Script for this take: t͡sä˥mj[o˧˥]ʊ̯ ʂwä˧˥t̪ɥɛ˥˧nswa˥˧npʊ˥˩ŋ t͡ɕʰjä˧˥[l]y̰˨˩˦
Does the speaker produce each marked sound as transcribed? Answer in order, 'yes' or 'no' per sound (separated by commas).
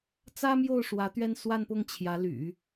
no, yes